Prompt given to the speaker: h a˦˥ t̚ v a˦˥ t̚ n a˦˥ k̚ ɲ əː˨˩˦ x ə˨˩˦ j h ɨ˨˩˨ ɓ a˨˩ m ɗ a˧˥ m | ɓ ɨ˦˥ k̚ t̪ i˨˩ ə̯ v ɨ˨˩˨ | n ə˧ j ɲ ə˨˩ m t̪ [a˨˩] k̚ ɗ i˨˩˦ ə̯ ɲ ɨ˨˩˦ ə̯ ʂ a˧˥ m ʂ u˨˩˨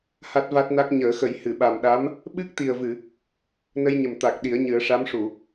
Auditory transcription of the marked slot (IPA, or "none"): a˨˩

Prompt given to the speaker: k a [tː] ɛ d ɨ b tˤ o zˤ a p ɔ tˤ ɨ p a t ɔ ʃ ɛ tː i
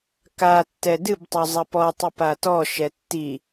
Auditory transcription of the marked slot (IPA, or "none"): tː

